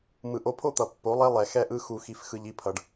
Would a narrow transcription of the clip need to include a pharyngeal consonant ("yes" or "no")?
no